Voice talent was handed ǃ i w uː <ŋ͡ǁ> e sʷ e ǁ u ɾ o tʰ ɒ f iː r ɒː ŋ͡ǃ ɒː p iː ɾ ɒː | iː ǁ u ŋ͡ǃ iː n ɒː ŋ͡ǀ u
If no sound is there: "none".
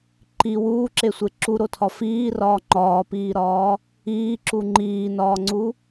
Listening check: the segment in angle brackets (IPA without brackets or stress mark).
ǁ